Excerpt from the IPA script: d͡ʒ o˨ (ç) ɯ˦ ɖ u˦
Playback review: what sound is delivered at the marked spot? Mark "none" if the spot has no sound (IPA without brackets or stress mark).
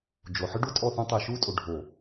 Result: ħ